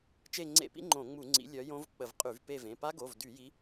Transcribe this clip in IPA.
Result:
t͡ʃ e˦˨ ŋ͡ǀ ḛ˦˨ p ḭ˦˥ ŋ͡ǃ õ˧˩˧ ŋ͡m u˧˩˧ ŋ͡ǀ ḭ˨˦ lʲ œ˨˦ j õ˦˥ v k͡p ə˧˩˧ v qʼ y˧˩˧ v p e˦˨ v ẽ˩˧˩ p a˦˥ ɡ o˩˧˩ v d y˧˩˧ j i˨˦

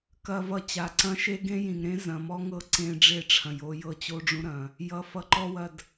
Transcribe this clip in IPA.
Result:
k ɐ˨ v ʌ˨ t͡ɕ a˨ ǀ ɐ̃˦ ʃ e˦ ɡ ẽ˦ j ĩ˨ ŋ ɾ ẽ˦ z ɐ̃˨ m ɔ˦ ŋ ɤ˦ ǀ ẽ˦ ɖ͡ʐ e˦˨ ʈ͡ʂʰ ɐ̃˨ j o˦ j ɤ˦ t͡ɕ o˦ ɖ͡ʐ ũ˦ ɾ ɐ̃˨ | j ʌ˨ f ʌ˨ ǃ ɔ˦ w ɐ˨ d

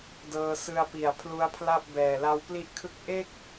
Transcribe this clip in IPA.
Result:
d ɤː˧ s ɯ˧ a̯ p i˨˩ a̯ pʰ l u˦˥ a̯ pʰ l a˥˩ p̚ b ɛː˨˩ l a˦˥ w p l i˥˩ ʔ kʰ ɯ˥˩ k̚ ʔ e˥˩ k̚

